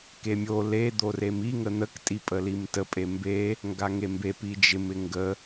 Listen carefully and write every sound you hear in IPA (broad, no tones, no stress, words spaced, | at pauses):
kemʲo le d̪oremi ŋən̪ək tʼipʼəlimtə pʼembe | ŋɡaŋembe pid͡ʒɪm ɪŋɡə